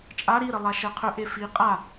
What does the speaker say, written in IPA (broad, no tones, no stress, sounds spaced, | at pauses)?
t͡ʃʼ a ɾ i ɾ ə lˠ a ʃ ɛ qʰ ɵ ʔ e f i qʼ a